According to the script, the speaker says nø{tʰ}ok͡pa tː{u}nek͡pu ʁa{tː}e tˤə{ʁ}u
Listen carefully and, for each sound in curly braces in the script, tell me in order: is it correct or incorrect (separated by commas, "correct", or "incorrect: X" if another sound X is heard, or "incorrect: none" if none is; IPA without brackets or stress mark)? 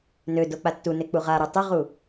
incorrect: d, correct, incorrect: ɾ, correct